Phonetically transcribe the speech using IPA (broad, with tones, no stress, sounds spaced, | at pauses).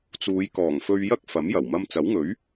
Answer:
t͡s uː˨˧ j k ɔː˨˩ ŋ f ɵ˧ ɥ j ɐ˥ k̚ f ɐ˨˥ m j ɐ˨˩ w m ɐ˧ m t͡s ɐ˨˥ w ŋ ɵ˨˥ ɥ